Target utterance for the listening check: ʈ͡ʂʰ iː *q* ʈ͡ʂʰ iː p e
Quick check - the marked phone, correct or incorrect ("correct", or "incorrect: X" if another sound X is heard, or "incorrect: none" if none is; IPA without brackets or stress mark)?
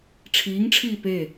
incorrect: ŋ